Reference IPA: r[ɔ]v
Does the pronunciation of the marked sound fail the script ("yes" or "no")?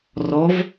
no